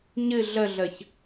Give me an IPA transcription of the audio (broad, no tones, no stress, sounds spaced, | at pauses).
ɲ ɨ ɮ ə ɮ ə ç